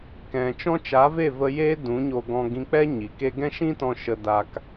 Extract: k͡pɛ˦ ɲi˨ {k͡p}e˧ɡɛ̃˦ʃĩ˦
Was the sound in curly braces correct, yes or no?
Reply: no